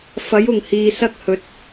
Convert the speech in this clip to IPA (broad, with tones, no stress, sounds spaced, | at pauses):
f ɐ˨˥ j ʊ˨˩ ŋ h iː˨ s ɐ˥ k̚ h ɵ˨˥ t̚